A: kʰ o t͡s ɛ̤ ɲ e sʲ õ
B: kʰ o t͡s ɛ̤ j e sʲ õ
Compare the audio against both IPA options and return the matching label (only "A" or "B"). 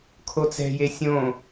B